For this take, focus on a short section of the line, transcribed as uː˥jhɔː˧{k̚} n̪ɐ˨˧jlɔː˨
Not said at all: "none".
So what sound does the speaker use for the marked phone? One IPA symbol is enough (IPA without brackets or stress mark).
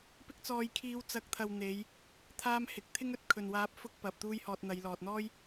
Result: t̚